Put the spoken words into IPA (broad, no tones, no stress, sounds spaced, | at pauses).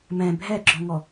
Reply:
m ɛ̃ bʱ ɛ ɡ͡ǁ ɔ̃ ŋ ɔ